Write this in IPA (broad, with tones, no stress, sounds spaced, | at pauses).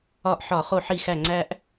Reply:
ɒ˧˩ ʔ ħ ɒ˧˩˧ χ o˧˩ ħ i˧˩ x æ˧˩ ŋ͡ǀ æ˧ ʔ